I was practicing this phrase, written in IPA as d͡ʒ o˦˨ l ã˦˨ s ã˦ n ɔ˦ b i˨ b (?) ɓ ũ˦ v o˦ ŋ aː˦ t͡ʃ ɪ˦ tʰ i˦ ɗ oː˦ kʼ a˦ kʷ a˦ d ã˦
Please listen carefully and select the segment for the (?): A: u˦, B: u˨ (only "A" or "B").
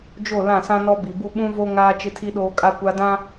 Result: A